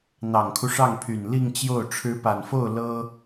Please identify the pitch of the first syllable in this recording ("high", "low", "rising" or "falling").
low